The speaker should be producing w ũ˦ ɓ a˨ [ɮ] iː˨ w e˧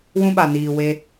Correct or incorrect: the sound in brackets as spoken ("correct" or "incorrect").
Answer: incorrect